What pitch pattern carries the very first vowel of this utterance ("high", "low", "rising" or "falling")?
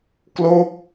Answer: falling